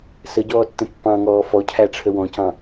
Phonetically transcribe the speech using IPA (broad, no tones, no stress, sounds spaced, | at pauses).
s ə ɟ ɔː tː ə̃ pː ɑ̃ ŋ ɔː f ɔ cʰ æ ʈ͡ʂʰ ə w ɔ̃ c ɑ̃